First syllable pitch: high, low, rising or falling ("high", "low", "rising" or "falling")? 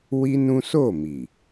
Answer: high